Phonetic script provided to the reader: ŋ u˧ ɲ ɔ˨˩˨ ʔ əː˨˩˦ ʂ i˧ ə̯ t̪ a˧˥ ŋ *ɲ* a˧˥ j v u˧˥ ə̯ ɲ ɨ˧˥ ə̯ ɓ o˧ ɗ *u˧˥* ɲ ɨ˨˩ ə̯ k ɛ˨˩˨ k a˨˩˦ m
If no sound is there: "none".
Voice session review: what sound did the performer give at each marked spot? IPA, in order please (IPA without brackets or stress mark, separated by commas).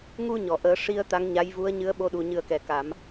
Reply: ɲ, u˨˩